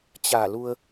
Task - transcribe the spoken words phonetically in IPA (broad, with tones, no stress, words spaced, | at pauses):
t͡ɕa˧˩lu˧ə̯